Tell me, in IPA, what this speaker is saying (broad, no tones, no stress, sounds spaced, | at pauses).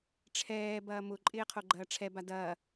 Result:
ʈ͡ʂʰ ɛː b ɐː m ʊ ǃʼ ɪː qʰ o ɡ͡ǃ ɐː ʈ͡ʂʰ ɛ b a d ɐː